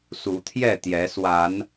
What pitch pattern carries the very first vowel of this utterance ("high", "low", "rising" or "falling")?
rising